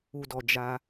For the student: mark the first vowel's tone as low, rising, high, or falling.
low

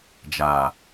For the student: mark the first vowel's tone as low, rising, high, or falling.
low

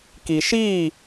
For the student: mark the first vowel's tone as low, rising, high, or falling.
low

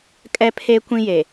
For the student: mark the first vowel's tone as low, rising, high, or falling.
high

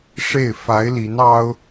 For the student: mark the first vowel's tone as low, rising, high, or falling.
falling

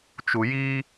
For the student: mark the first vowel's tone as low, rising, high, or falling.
low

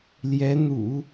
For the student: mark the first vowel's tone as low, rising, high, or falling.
rising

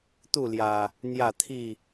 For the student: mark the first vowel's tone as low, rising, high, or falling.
falling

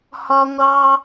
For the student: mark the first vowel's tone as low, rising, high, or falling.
high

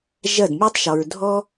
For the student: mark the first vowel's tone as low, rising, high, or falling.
falling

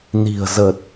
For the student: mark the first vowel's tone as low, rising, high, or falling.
low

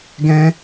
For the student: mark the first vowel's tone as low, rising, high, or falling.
high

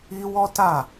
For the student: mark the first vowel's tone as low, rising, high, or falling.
high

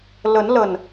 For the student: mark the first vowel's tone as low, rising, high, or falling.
rising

